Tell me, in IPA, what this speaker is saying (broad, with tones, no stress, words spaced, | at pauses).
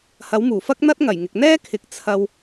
hɐ˨˥wmuː˨˩fɐ˥k̚ n̪ɐ˥t̚ŋɐ˨˩jŋɪ˨k̚ n̪ɛː˥kʰɪ˨˥k̚ t͡sʰɐ˧w